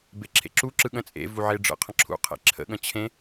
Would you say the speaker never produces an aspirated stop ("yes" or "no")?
no